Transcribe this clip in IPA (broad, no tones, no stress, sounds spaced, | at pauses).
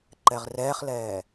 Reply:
ǃ ɛ ʁ r ɛː χ l ɛː